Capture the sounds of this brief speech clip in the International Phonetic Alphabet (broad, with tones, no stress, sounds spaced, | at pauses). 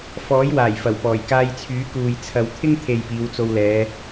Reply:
f ɔː˨˥ j w aː˨˩ j f ɐ˨˩ w p ɔː˨˩ j k aː˧ j t͡sʰ yː˨˥ k uː˨ j t͡sʰ ɐ˨ w t̪ʰ ɪ˥ ŋ t̪ʰ e˨ j p iː˨˧ w t͡s o˧ w l ɛː˨˧